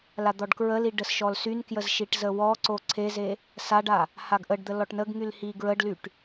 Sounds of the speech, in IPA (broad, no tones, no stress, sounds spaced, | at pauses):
l a d̪ ɔ ɖ k ɹ ə l i ɖ ə s ʃ ɔ l s y n k j ə z ʃ i ʈ z ə w ɔ ǀ o ǀʰ e z e | s a ɖ a | h a ɡ ʔ ə ɖ d̪ ə l ɔ ʈ n ə ɡ ŋ y l h i ɡ ɹ ə ɖ l y ʈ